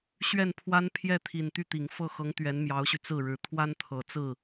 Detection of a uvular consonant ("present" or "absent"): absent